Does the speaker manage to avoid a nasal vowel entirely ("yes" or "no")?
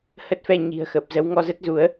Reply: yes